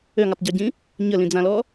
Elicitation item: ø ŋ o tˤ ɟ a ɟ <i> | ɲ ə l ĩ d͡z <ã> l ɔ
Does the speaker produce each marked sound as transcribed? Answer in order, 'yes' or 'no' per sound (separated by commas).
no, yes